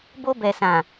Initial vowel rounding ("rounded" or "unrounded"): rounded